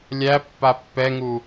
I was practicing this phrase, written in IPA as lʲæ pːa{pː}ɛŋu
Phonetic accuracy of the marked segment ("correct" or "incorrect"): correct